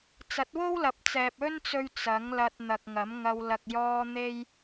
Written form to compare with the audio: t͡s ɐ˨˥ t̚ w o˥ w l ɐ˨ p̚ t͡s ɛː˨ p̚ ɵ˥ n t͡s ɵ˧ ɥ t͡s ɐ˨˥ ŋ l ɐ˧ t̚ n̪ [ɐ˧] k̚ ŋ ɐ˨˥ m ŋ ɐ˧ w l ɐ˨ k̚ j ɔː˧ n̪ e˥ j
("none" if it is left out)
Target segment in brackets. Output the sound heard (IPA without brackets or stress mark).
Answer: ɐ˨